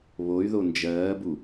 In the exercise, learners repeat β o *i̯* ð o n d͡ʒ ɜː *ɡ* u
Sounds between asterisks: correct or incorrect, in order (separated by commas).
incorrect, incorrect